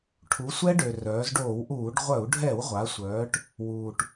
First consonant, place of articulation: retroflex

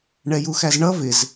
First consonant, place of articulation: retroflex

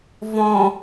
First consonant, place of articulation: labial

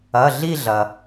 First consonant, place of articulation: alveolar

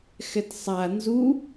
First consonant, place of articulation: velar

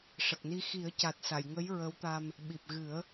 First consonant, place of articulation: retroflex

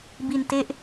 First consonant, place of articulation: labial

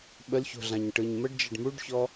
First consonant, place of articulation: labial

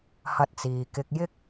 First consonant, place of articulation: glottal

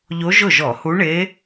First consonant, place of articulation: palatal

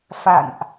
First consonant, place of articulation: labial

